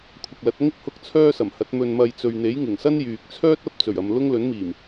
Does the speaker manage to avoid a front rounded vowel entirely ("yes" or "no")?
no